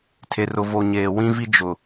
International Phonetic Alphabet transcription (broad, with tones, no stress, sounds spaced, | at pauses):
tʰ e˨ r ʊ˨ v o˨ ɲ eː˨ w ĩ˦ v i˦ d͡ʒ ʊ˨